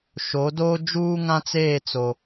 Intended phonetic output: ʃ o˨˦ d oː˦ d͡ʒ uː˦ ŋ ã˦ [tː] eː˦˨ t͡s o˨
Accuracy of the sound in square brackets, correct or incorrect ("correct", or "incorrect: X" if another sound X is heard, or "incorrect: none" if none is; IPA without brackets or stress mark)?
incorrect: t͡s